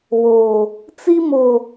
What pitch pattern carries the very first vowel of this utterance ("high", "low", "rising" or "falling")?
low